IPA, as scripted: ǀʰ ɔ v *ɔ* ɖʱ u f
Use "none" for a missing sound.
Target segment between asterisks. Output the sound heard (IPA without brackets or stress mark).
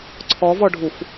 ɔ